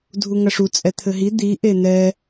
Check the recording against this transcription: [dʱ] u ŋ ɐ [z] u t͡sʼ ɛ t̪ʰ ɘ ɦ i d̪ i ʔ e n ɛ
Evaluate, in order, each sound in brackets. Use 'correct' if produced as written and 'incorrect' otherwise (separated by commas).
correct, incorrect